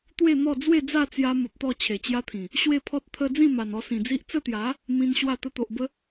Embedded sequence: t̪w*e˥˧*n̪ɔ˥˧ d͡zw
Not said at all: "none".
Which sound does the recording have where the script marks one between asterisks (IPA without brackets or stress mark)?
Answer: e˥˧